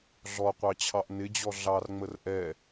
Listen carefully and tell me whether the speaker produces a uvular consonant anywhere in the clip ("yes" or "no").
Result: yes